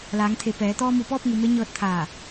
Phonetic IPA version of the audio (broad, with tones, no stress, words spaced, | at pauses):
laː˩˧ŋt̪ʰe˩ pɛː˩˧ t̪ɔː˧mu˧˩pɔː˥˨p̚ ŋu˩˧me˧˥ ɲɤː˧t̚t̪ʰaː˧˩